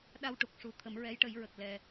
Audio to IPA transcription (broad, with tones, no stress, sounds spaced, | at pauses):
ɗ a˧ w ʈ u˨˩ k̚ ʂ u˨˩ t̪ʰ ə˨˩˦ m ɹ ɛ˧˥ j ʈ ə˨˩˦ j ɹ ə˨˩ k̚ l ɛ˧